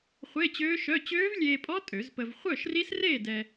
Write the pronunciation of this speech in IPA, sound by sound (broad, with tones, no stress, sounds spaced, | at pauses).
χʷ e˧˥˧ t͡ɕ øː˦˥ ʃ œ˧˥˧ t͡ɕ øː˦˥ v lʲ eː˧ pʼ ɔ˦˥ tʼ ø˨˩˦ z p ə˧ v χʷ œ˥˨ ʃ r i˦˥ s r eː˥˨ d ɛ˧